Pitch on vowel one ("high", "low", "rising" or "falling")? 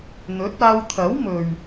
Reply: rising